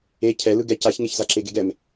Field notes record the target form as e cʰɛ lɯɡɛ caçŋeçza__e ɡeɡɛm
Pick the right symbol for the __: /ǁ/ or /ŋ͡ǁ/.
ǁ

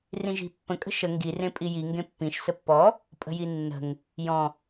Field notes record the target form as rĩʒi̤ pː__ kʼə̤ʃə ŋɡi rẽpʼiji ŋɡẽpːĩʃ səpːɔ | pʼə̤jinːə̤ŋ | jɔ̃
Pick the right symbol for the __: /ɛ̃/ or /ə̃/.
ə̃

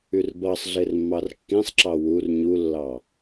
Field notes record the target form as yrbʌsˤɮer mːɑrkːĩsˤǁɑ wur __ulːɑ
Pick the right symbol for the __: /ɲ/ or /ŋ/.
ɲ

